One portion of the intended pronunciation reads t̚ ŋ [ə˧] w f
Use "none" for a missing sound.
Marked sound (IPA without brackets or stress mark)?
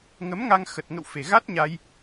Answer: ə̰˧˨